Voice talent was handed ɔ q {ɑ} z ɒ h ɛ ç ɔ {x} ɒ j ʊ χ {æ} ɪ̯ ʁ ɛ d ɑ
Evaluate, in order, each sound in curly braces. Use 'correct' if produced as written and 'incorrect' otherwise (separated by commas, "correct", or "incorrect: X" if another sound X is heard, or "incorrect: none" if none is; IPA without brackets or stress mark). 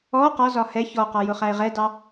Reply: incorrect: ɒ, incorrect: q, correct